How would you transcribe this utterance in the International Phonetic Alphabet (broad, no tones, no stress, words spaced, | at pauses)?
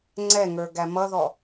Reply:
ŋ͡ǀɛŋə˞ ɡæmʌðɔ